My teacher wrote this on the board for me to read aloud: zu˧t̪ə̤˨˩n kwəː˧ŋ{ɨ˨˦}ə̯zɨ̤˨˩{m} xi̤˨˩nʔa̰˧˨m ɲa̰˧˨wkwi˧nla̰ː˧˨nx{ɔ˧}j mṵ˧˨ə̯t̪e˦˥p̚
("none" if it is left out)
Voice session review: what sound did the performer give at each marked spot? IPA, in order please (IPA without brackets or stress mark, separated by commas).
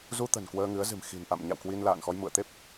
ɨ˨˦, m, ɔ˧